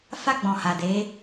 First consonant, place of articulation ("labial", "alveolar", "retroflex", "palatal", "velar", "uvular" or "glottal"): labial